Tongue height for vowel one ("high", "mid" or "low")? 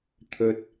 mid